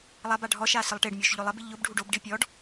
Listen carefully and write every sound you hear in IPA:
lˠaba ɖʱɔʃa sɪlˠʈeɖmʲoʃ ʎolˠɛbɪ ʎʊbɖʱuɖ obɖi pʲɔɖ

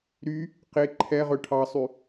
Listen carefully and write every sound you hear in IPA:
ɾy | qe ǃʰɛʁɵ ʈʰɑsˤy

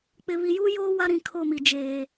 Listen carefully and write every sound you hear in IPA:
k͡pɪ˨βi˨juː˦ joː˦ wa˦ɾĩ˨ kʰo˦˨mi˨d͡ʒeː˨

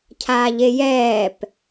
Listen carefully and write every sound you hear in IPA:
cʰaːʎejɛːp

